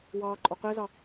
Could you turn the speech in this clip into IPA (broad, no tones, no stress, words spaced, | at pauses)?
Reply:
wɑː ǃʼoqezɑ